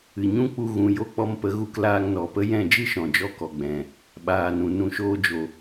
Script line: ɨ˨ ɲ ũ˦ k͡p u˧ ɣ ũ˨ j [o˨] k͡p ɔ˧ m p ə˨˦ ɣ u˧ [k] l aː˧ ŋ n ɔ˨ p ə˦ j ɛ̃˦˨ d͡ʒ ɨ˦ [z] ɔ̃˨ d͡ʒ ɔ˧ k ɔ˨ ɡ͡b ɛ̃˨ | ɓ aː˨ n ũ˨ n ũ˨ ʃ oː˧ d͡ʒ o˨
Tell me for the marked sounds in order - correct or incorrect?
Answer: incorrect: o˦˨, correct, incorrect: ʃ

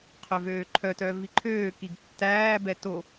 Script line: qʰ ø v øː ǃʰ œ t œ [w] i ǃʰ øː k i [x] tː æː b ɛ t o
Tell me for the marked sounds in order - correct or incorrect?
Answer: incorrect: v, incorrect: ɡ

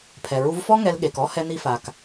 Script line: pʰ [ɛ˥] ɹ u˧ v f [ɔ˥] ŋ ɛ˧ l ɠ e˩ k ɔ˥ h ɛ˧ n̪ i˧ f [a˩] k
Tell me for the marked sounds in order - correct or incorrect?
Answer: incorrect: ɛ˩, correct, correct

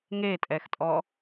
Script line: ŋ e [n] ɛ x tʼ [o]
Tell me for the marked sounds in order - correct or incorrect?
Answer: incorrect: tʼ, incorrect: ɔ

